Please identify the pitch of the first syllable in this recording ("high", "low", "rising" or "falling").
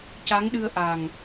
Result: rising